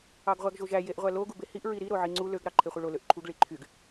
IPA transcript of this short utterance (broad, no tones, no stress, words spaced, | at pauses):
ɑɡʁʷæɡʒoʒæ jeʔʁʷælo ɡubehiʔ ɹiɾi ɾoʕiŋ͡ǀu løɡ ɾɑǃʰeχʷɯɭo løʔǃʰuɡ ɭiǃʰyɡ